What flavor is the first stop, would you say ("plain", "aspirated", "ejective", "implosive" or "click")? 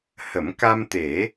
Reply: plain